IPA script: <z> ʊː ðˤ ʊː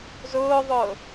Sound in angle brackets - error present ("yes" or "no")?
no